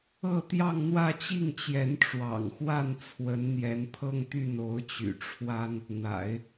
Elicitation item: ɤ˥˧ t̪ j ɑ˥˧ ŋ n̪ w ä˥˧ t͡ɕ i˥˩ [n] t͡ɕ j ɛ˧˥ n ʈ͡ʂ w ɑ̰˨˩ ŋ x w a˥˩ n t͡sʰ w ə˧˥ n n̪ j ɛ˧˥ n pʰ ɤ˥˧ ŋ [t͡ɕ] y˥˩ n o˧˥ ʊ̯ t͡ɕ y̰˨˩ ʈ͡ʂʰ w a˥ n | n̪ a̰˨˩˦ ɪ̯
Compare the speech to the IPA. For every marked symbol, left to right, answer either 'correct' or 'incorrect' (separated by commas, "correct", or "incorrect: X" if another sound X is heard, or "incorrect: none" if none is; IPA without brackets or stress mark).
incorrect: ŋ, incorrect: t̪